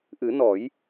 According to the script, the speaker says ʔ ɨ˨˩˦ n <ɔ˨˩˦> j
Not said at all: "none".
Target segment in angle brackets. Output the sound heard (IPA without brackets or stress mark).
ɔ˨˩˦